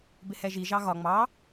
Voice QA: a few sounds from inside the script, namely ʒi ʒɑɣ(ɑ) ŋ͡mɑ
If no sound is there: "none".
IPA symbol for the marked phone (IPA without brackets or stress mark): ɒ